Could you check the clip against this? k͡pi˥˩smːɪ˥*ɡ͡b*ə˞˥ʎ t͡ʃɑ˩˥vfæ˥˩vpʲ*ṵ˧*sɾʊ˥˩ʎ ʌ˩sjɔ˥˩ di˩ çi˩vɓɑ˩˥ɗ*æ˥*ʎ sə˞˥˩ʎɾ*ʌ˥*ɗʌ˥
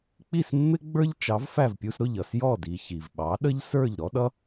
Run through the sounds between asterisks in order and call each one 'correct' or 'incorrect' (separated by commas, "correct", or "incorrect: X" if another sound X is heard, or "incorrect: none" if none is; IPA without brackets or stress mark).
correct, incorrect: u˧, incorrect: ə˥, incorrect: ɔ˥